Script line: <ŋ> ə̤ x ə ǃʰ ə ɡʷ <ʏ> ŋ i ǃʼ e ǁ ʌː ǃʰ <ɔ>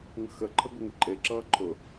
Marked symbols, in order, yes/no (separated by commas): yes, no, no